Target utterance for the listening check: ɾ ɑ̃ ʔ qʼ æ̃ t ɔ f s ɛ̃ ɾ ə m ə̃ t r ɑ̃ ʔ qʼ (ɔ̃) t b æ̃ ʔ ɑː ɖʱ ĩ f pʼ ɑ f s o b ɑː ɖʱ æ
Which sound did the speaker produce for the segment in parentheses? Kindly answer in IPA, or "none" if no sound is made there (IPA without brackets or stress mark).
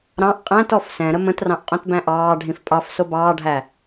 õ